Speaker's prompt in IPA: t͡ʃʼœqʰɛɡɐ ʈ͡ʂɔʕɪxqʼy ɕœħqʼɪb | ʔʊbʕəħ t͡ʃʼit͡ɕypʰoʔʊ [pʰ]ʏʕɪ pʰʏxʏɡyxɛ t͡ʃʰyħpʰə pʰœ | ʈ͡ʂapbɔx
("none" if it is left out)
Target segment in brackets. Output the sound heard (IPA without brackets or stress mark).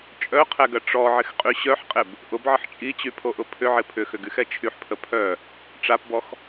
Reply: pʰ